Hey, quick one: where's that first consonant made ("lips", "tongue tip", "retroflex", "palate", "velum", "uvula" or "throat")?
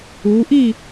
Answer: throat